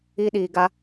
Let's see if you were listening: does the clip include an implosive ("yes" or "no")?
yes